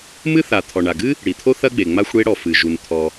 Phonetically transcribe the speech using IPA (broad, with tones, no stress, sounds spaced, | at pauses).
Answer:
m ɨ˥ θ a˩ t̪ʰ ɔ˩ ɳ a˩ ɡ ɨ˥ | ɽ i˩ t̪ʰ o˥ θ ɐ˥ ɡ͡b e˩ ŋ͡m a˥ xʷ ɽ e˥ ɽ ɔ˩ f ɨ˩ ʒ u˩ n t̪ʰ ɔ˩